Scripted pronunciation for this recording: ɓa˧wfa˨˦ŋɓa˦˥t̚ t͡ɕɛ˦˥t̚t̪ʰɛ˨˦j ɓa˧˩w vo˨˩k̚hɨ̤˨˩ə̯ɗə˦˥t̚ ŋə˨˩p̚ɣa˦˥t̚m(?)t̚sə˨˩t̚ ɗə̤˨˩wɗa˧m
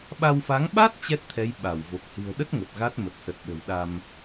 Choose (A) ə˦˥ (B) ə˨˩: B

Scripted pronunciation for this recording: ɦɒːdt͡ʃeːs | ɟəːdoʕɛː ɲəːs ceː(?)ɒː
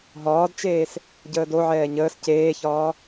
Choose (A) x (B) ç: B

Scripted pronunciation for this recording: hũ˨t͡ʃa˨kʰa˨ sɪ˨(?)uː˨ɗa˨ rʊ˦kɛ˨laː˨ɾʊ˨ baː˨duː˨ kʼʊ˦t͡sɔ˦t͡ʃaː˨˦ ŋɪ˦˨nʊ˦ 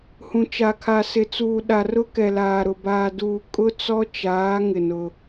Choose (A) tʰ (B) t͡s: B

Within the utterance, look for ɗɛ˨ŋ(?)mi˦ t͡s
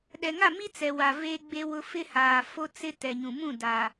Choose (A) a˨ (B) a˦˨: B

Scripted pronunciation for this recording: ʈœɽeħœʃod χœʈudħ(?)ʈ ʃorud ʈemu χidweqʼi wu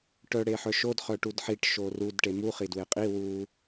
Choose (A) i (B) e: A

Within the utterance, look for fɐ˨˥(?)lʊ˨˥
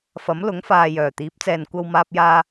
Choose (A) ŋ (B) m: B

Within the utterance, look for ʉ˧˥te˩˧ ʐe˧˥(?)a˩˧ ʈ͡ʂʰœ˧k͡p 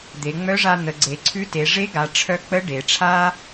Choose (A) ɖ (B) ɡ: B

